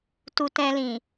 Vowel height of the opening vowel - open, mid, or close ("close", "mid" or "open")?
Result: close